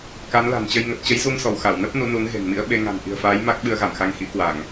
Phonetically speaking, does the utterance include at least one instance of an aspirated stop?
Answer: no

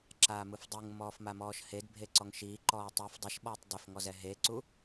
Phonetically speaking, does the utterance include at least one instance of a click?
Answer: yes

